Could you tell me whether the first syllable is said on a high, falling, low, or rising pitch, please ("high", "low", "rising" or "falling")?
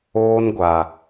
high